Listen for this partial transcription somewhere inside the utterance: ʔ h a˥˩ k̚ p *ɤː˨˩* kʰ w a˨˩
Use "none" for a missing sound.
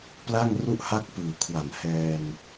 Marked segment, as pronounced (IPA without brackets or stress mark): ɯː˨˩